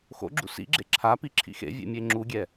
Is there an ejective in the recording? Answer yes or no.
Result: no